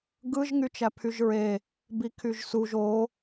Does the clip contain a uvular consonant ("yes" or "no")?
no